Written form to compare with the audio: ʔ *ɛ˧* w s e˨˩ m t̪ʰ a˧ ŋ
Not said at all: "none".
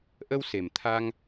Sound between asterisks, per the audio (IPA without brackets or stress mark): ə˧